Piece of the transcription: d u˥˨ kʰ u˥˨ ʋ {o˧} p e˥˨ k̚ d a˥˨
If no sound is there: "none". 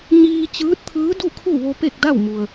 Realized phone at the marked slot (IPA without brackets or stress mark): o˧